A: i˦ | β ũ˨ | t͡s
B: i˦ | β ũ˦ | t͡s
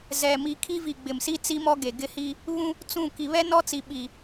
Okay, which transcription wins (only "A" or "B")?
B